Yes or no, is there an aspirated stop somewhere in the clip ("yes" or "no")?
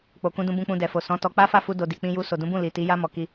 no